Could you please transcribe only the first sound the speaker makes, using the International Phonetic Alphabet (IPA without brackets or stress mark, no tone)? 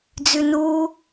d͡z